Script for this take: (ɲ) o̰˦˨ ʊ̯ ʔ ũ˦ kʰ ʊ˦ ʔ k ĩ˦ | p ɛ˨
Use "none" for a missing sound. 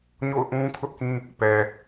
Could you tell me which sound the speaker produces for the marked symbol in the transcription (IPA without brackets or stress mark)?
ɲ